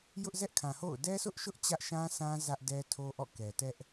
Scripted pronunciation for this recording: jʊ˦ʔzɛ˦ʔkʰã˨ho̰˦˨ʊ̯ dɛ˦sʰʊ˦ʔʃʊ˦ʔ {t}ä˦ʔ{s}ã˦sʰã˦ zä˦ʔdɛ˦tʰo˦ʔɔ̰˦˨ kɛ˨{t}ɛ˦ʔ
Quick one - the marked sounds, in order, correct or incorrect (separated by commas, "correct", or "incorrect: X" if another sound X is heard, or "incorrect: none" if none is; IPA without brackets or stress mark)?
incorrect: t͡ɕ, incorrect: ʃ, correct